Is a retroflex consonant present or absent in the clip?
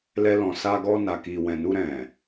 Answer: absent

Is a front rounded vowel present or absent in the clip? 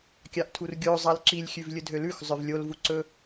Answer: present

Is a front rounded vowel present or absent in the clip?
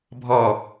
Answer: absent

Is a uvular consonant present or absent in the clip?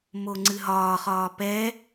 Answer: present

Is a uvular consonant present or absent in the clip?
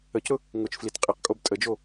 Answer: present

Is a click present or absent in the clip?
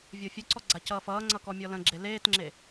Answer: present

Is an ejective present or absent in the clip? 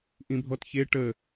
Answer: absent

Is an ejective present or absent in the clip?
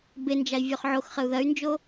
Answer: absent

